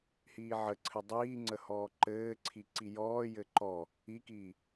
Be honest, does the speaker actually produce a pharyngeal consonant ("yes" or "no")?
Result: yes